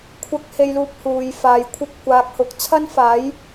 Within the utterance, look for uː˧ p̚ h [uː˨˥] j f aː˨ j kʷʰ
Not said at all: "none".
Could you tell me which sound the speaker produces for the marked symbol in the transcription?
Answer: uː˨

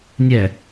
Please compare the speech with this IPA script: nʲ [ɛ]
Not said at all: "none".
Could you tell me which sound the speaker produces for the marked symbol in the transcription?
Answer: ɛ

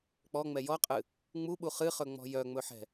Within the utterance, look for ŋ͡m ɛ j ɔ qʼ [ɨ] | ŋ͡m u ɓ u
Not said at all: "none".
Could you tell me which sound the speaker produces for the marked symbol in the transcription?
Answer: ɨ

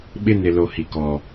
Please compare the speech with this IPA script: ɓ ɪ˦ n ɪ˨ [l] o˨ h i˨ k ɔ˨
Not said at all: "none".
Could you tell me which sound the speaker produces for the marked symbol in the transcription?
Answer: l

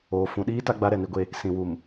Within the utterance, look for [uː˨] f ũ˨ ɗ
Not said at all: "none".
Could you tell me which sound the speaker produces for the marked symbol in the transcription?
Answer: oː˨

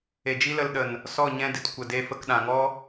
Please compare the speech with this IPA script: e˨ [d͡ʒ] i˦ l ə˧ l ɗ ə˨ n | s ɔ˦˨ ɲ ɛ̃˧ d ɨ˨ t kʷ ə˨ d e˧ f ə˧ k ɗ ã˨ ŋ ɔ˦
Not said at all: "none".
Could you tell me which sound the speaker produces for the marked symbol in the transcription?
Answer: d͡ʒ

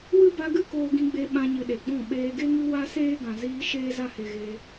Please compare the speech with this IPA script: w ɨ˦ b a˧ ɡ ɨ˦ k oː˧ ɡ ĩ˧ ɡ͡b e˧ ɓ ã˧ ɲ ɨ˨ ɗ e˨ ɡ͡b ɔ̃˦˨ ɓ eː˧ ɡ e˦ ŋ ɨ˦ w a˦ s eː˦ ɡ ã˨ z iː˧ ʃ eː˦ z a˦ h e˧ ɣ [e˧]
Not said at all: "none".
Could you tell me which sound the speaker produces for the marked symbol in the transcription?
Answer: e˧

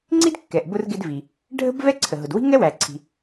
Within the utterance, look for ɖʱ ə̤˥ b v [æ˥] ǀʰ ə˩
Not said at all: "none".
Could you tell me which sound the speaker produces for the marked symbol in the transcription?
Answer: ɛ˥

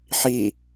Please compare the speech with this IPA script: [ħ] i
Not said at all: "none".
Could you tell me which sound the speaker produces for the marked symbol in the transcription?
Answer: ħ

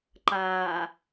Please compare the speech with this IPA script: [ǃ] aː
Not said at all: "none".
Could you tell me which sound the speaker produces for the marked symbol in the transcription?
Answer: ǃ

